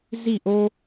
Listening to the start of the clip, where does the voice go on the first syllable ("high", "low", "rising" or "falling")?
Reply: falling